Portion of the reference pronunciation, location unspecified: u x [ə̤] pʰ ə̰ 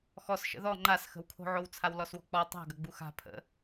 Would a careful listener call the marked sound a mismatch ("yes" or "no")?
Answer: yes